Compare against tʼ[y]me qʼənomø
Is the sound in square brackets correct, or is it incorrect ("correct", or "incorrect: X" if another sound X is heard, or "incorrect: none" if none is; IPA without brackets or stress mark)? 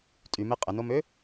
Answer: correct